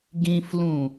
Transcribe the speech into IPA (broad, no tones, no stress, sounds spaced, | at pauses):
ɡ ĩ f l ũ